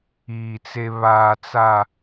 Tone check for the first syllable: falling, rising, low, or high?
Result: low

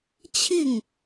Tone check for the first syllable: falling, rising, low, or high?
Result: falling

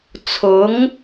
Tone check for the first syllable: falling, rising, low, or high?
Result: rising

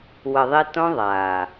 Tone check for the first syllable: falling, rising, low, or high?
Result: low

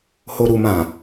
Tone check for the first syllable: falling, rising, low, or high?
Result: low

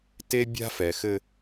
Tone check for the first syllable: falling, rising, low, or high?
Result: high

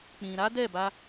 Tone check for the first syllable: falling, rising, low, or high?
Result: low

